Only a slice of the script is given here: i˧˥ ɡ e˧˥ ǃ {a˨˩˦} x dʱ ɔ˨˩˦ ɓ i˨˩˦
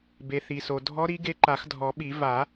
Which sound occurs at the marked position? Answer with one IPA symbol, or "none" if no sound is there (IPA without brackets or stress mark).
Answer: a˨˩˦